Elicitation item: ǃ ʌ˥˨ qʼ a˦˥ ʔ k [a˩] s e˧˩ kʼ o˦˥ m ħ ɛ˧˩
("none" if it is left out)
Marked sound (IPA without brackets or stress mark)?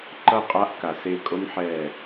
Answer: a˩